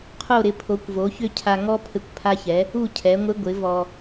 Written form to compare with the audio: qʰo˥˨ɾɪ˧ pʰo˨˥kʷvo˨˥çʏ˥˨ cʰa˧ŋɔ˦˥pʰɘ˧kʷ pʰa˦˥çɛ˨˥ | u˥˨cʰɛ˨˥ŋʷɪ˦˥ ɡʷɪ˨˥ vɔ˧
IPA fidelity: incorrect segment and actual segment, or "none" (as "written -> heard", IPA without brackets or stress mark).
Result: none